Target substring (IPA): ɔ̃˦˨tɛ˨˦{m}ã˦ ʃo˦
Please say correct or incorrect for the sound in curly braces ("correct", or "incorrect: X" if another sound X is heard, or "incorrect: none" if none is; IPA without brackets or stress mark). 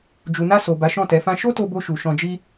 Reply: incorrect: f